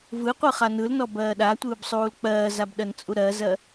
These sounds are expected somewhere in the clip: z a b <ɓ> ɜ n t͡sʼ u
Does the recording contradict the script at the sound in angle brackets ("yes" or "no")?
yes